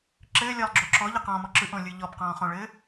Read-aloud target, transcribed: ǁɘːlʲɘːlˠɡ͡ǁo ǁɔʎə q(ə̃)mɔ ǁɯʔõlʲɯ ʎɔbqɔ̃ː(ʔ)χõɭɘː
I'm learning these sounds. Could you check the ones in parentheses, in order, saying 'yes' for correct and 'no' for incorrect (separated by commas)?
no, no